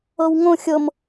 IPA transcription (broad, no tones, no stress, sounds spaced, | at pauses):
ɤ w ŋ õ xʲ ɤ m